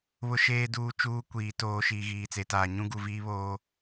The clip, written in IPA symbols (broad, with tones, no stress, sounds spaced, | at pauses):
β ʊ˨ ʃ eː˨ d uː˨ t͡ʃ uː˦ kʷ iː˨ t oː˨ ʃ iː˨ ɣ iː˨ t͡s e˨ t aː˨ ɲ ũ˦ ɡ u˨ v iː˦ β oː˦